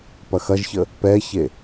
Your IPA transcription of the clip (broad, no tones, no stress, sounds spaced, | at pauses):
p ɐ x ɐ ʒ ç ə | p ɛ ç e